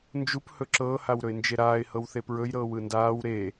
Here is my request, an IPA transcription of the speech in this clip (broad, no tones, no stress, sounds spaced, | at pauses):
n d͡ʒ u p h ɵ ǁ ɤː h a w ɾ ɵ ɪ̯ n d͡ʒ e ɾ aː ɪ̯ h ɤ w θ e p ɹ ɵ j ɾ ɤː w ɯ n d aː w ɾ e